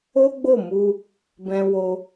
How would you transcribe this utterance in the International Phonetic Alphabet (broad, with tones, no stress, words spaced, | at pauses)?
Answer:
o˦ɡ͡bo˦˨mu˧ | bɛ̃˧wo˧